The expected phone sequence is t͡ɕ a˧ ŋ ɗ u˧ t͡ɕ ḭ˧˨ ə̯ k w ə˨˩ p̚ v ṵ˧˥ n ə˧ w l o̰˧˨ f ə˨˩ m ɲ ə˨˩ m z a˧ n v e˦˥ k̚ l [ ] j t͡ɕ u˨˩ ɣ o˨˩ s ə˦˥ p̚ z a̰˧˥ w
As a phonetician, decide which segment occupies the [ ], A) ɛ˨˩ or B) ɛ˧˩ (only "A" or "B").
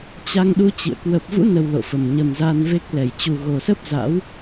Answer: B